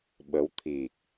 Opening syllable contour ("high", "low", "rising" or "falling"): rising